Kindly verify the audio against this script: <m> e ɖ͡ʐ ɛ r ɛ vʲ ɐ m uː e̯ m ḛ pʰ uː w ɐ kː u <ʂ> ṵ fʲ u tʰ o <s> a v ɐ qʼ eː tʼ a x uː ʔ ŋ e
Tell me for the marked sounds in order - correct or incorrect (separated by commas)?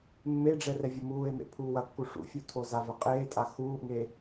incorrect, correct, incorrect